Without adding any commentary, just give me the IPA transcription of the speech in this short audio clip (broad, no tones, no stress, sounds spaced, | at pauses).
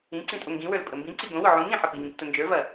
ĩ ǀ ĩ tʼ o ŋ ɡ ĩ w ə˞ l pʼ ə m b ĩ ǀ i ɡ õ w ʊ ʕ ũ ŋ ĩ ħ ɐ p i ŋ ĩ p t ʊ n d͡ʒ ə˞ v ɐ